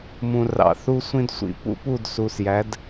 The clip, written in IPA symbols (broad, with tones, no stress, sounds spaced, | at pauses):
m ũ˨ r ɑ̰˨ θ u˧ sʷ ĩ˧ d sʷ ḭ˧ p ṵ˦ p u˦˨ d s uː˨ s j æ˨˦ d